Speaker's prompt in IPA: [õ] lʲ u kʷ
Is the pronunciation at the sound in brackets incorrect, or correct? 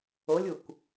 incorrect